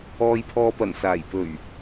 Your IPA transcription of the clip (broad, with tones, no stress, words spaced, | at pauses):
ɔː˨jpʰɔː˨pɐ˨˩n saː˨˩jpɵ˨˩ɥ